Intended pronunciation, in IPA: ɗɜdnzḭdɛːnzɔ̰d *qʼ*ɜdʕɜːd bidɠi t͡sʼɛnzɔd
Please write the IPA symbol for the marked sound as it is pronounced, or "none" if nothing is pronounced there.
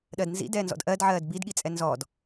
ʔ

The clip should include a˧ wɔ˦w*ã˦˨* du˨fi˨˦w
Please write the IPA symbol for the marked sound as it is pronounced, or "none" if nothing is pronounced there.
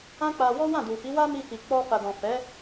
ã˦˨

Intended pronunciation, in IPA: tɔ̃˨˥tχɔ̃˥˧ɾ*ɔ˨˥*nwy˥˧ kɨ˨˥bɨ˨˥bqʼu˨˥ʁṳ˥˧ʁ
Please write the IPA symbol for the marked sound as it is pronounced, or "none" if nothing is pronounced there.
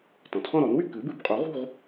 ɔ˨˥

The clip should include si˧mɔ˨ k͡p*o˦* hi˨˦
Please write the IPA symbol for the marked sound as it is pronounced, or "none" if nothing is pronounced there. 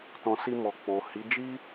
o˨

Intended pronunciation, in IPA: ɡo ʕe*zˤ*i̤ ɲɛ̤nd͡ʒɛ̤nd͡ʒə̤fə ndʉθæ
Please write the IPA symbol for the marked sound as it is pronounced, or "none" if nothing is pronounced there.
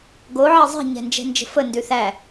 zˤ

